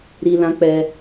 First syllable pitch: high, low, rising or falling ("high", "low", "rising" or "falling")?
low